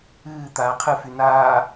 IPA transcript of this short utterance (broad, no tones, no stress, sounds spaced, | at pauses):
ɨː t̪ aː qʰ ɨ f y n aː